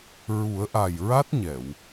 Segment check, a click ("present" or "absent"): absent